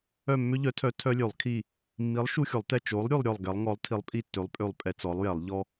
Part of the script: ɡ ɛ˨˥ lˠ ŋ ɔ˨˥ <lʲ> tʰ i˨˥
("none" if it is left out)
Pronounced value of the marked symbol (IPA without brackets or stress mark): lˠ